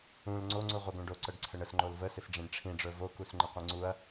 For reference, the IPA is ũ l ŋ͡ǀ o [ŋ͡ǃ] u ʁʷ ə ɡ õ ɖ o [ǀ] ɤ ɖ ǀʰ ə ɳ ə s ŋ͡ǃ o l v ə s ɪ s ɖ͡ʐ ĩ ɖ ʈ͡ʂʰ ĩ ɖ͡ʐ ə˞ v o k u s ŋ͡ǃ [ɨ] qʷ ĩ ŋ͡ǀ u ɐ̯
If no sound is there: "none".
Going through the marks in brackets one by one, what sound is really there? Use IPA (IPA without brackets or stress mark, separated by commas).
ŋ͡ǀ, ǀ, ɪ